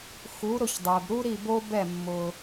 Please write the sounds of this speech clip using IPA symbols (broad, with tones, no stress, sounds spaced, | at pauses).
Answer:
x u˩˥ ɾ ʊ˥˩ ç dˤ ɛ˩ b ɾ u˥ ɾ i˥˩ b o˥ b ɛ˥˩ mː ʊ˩